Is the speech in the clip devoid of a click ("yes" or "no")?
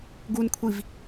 yes